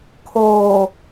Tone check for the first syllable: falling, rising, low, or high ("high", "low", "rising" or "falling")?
low